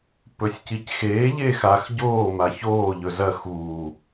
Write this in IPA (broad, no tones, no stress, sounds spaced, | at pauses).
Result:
p ɵ sʲ c i c x eː ʎ eː x a x ɟ oː m a ç oː ʎ ɵ z ɐ x uː